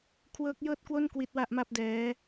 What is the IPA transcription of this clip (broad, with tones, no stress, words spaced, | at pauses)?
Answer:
kʰwɤː˦˥k̚jɤː˥˩t̚kwo˥˩n kwi˦˥t̚wa˦˥ʔma˥˩p̚dɛː˦˥